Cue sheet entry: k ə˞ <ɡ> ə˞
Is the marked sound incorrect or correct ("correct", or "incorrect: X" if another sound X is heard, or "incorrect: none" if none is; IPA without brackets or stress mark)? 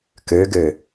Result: correct